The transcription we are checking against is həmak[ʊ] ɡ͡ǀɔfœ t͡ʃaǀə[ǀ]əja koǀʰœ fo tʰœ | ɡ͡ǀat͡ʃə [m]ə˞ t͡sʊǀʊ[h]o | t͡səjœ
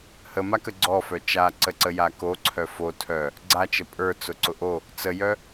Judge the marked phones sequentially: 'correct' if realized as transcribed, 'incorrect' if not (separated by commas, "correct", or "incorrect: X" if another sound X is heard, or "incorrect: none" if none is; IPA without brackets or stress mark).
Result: incorrect: ə, correct, incorrect: pʼ, incorrect: ʔ